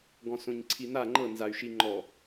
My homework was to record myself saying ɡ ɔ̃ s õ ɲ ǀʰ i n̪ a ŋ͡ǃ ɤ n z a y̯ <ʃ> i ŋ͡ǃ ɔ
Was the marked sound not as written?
no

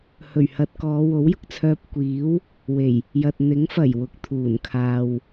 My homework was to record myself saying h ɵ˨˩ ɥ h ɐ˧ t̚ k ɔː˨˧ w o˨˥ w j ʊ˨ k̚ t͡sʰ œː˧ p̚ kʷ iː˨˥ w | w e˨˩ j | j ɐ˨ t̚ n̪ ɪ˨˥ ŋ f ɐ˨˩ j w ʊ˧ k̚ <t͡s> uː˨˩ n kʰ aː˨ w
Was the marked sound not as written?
yes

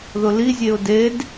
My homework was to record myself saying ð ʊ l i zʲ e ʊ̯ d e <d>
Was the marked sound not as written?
no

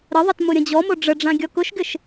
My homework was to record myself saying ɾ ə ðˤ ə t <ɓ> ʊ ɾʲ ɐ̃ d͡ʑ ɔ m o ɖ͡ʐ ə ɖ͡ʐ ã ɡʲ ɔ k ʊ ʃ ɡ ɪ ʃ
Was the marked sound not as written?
yes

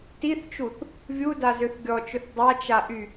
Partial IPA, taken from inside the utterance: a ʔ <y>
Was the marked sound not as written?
no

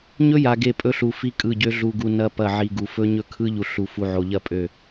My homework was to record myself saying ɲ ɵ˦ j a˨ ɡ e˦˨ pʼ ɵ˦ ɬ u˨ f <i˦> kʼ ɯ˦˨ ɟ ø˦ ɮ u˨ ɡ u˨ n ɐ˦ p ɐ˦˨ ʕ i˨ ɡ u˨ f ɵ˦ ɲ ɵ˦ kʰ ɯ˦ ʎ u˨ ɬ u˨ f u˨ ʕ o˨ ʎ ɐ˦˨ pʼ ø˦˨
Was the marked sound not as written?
no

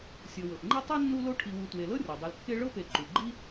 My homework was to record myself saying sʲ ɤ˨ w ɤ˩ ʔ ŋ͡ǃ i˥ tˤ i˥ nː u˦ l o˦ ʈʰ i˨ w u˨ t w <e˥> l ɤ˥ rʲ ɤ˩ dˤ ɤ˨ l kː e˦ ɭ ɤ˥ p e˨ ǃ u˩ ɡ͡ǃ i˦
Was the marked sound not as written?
yes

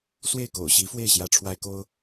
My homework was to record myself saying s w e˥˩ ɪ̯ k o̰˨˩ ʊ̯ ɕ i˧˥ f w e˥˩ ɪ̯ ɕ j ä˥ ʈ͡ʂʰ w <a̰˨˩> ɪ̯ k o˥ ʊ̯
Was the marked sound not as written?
yes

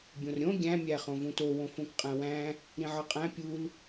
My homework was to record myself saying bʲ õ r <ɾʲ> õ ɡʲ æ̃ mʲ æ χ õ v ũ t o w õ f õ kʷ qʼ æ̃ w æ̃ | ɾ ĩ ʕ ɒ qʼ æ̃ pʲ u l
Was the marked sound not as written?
no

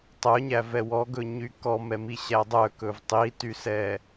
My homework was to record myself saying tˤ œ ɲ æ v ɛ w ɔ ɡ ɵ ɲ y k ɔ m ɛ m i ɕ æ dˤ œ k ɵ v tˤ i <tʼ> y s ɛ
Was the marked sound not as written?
yes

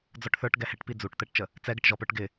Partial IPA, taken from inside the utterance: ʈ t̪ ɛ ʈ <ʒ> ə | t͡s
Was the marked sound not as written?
yes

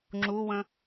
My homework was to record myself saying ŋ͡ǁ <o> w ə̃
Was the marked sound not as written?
yes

